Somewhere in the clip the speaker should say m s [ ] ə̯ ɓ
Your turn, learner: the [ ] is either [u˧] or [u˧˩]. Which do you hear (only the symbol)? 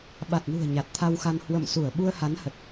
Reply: u˧˩